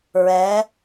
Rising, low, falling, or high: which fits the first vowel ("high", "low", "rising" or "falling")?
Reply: rising